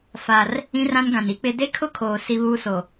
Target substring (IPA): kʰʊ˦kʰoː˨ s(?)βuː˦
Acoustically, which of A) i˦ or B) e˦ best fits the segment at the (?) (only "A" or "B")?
A